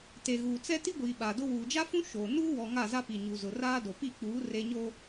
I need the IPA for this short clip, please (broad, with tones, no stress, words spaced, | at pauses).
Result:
te˨ɣuː˨t͡sɛ˦ ti˦ɡʷiː˨ ɓa˨dʊ˦ wuː˨d͡ʒa˦fũ˦ ʃoː˨ nuː˦wɔ˨ ŋa˦˨za˦pi˨ ɲu˨ zʊ˨ raː˦do˨pi˦˨k͡puː˨˦ re˨ɲo˨